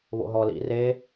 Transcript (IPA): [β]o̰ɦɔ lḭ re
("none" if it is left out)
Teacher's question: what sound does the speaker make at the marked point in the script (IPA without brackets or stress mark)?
β